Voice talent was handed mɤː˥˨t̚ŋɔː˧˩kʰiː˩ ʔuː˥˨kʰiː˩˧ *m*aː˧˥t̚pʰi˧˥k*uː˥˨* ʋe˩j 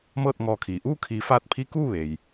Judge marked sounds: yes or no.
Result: no, yes

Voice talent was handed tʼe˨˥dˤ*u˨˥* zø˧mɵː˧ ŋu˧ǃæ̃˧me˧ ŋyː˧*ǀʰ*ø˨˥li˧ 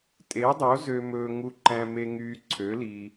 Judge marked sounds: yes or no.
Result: no, yes

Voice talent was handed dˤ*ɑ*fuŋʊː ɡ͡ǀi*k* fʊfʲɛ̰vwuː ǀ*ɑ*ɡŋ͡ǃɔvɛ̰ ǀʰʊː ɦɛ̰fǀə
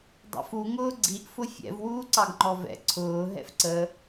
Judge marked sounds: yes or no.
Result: no, no, yes

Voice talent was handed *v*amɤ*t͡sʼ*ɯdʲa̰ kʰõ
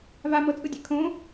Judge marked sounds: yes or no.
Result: yes, yes

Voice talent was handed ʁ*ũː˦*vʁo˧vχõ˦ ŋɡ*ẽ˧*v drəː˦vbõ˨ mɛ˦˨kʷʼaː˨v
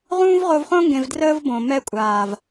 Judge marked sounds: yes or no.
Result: yes, yes

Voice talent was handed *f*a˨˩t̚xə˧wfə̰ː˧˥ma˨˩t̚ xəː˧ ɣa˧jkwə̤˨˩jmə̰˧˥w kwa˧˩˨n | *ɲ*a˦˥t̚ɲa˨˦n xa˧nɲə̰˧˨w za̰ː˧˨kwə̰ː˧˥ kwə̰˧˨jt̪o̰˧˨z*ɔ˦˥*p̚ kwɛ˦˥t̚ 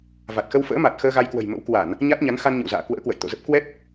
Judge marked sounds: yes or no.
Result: no, yes, no

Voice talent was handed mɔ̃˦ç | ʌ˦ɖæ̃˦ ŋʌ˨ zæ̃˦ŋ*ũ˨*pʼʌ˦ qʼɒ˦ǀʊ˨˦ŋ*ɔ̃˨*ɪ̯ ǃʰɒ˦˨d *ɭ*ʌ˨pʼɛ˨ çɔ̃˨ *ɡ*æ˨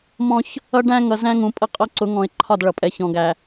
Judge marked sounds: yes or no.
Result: yes, yes, yes, yes

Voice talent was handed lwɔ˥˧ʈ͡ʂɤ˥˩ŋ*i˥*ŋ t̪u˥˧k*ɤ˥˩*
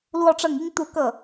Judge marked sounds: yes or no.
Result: yes, yes

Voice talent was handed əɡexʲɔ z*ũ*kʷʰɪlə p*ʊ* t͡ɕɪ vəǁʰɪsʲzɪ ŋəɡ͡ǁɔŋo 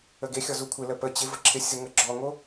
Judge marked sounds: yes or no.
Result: no, no

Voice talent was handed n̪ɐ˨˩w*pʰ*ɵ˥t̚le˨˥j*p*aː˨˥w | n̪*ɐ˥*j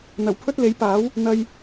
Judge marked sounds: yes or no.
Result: yes, yes, no

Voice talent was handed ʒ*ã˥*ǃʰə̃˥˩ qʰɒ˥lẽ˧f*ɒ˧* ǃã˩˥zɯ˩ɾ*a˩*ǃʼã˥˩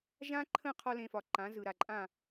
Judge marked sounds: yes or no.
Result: yes, no, yes

